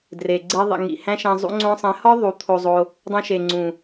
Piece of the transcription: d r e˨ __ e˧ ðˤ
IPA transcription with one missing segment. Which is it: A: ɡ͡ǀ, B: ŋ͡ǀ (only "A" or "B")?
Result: A